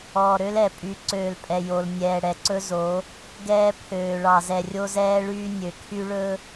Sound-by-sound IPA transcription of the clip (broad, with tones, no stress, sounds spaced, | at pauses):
ɔː˨ ɾ ø˦ l ɛ˨ pʼ y˨˦ ǀ øː˨ l pʼ ɛ˨ j o˨ l nʲ ɛː˨ ɽ ɛ˨ ǀ ɵ˦ z o˨˦ | ɡ ɛː˦ pʰ øː˨ ɭ ɑ˨ z ɛ˨ rʲ o˦ z ɛː˦ ɭ yː˦ nʲ ø˨ kʰ y˦ ɭ ɵ˦